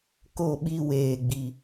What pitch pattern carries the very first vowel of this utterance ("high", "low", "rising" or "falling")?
falling